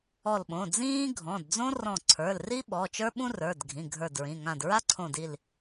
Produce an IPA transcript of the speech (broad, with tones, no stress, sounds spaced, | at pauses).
ɔ˧˩ l ɓ õ˩˧˩ d͡z ĩː˥ ɡʱ ɔ̃˩˧˩ d d͡z õ˥ r ɔ̃˧˩ ǀʰ ə˞˩˧˩ l r i˥ ɓ ɔ˩˧˩ t͡ʃ ə˞˥ ɓ ũ˥ r ə˞˩˧˩ d ɡʱ ĩ˩˧˩ ɡʱ ə˞˧˩ d ɹ ĩ˩˧˩ ŋ ã˧˩ d ɹ a˥ ǀʰ õ˧˩ d i˧˩ l